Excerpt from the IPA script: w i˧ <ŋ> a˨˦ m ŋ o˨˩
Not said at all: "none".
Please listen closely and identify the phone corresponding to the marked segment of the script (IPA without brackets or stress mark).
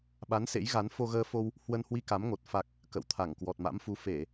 k